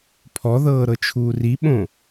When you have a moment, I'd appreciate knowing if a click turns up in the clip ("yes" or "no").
no